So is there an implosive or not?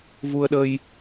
yes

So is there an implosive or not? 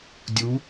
no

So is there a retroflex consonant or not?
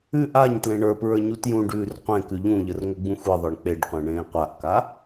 yes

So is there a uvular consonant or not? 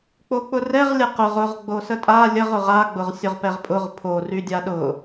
yes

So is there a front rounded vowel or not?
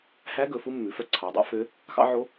yes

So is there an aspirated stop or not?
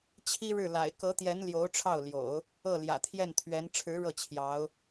yes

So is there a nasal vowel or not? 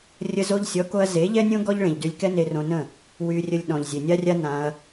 yes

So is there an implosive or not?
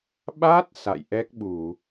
yes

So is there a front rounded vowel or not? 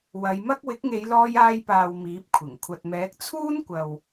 no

